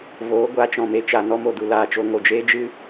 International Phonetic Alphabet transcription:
v oː˨˦ ɡʷ a˨˦ t͡ʃ ɔ̃˨ m e˧ t͡ʃ a˨ n ɔ˧ m o˨ d u˨ l aː˦ t͡ʃ o˦ ŋ o˦ d͡ʒ eː˦ d͡ʒ ɨ˦

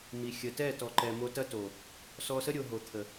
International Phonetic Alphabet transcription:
m i˨ xʲ ə˨ t ɛ˦˨ t ɔ˨ ǃ ɛ˨ m o˧ t ɐ˦ t o˨ | s ɔ˧ s ə˦ ɾʲ o˨ ɦ o˨ t̪ʰ ə˨

